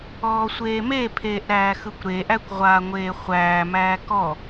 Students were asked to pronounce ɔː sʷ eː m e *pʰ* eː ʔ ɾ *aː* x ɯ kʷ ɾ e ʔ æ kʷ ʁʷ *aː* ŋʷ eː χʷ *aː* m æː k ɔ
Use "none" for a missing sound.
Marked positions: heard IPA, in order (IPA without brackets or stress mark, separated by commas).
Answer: pʰ, æː, aː, æː